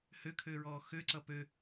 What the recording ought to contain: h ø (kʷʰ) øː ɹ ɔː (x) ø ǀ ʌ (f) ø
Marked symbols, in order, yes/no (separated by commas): no, yes, no